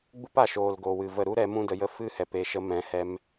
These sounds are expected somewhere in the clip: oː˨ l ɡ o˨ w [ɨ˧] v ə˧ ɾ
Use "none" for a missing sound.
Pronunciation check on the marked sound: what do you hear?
ɨ˨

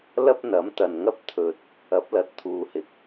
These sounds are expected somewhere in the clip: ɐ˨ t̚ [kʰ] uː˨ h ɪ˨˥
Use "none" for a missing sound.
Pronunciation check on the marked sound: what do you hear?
t̪ʰ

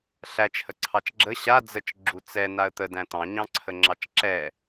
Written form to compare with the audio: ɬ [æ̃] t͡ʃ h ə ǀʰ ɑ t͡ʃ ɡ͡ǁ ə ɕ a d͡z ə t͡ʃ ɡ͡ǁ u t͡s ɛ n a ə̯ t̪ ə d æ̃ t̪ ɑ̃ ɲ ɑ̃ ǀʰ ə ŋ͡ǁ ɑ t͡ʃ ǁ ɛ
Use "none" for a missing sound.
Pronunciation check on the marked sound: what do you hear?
æ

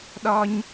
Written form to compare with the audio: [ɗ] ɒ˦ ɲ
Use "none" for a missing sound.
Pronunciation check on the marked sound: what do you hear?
ɗ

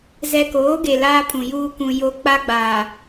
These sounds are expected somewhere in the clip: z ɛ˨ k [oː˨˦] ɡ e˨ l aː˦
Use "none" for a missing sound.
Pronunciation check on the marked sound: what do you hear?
oː˨˦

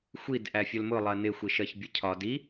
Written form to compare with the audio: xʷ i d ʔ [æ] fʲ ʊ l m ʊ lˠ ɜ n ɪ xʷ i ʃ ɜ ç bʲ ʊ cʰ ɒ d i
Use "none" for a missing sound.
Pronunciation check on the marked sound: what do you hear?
æ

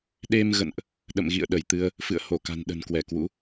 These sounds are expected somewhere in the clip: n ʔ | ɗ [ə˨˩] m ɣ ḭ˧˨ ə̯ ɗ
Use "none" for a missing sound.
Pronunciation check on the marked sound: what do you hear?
ə̰˧˨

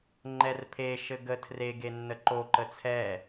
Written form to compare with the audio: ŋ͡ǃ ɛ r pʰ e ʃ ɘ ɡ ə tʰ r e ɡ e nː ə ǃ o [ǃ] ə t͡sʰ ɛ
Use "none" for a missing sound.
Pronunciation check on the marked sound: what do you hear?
ǃ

